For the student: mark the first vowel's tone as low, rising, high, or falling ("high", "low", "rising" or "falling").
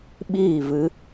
falling